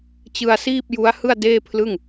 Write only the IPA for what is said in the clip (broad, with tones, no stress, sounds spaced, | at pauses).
t͡ɕ ɯ˧ a̯ s iː˥˩ p̚ j u˦˥ a̯ h ɯ˥˩ a̯ d eː˥˩ pʰ l ɯ˥˩ ŋ